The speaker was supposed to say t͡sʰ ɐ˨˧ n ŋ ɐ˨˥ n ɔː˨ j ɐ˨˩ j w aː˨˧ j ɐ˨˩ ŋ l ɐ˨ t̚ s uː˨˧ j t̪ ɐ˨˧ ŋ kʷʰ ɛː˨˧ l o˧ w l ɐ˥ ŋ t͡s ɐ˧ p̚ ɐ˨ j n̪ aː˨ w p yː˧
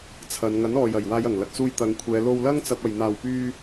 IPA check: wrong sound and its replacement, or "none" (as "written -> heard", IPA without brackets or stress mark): uː˨˧ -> uː˧